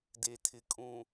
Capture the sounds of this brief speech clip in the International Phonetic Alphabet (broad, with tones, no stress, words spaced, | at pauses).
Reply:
de˨tʰɪ˨ kʼũ˨